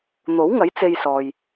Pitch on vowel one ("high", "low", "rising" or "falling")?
rising